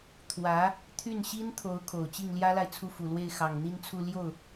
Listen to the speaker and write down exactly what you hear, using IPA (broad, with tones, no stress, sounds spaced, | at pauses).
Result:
t̪ʰ w ä˧˥ | t̪ʰ y˥˩ n ɕ i˥ n t̪ʰ o˧˥ ʊ̯ kʰ o˨˩ ʊ̯ t͡ɕ i˥˩ ŋ l j ä˥ l a˨ ɪ̯ t͡sʰ u˥˩ f u˨˩ l w e˥˩ ɪ̯ x ɑ˨˩ ŋ n̪ i˥˧ n t͡sʰ u˥˧ l j o˥˩ ʊ̯